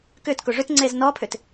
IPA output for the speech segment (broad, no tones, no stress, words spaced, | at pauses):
kʏt koʐʏt ŋ͡ǀeznɔpʰʏt